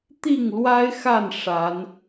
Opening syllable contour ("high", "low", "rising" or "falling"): falling